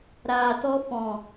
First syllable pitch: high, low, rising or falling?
low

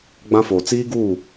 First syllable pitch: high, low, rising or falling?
high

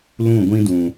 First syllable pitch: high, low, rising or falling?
falling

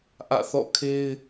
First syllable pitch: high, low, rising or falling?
falling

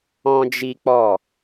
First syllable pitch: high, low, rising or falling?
high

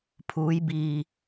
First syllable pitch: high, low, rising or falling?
rising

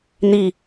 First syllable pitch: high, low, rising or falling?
falling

